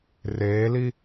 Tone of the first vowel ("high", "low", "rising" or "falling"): rising